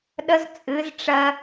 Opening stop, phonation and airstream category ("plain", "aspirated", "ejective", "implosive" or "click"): implosive